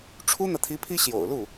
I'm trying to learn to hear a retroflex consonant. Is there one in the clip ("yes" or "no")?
yes